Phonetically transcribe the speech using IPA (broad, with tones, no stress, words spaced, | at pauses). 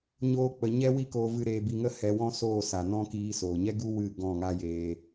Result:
ɲoː˦k͡pə˧ ɲɛ˦wi˦ko˧ vɨ˧ɾeː˧bi˧ŋə˦ hɛ˧wɔ̃˦soː˦˨ sa˨nɔ̃˦kiː˧ soː˨ɲɛ˦ɡu˦ wɨ˦˨ ɡɔ̃˦˨ŋa˦jeː˧